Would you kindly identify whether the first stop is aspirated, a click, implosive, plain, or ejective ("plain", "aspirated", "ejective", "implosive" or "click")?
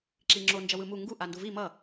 click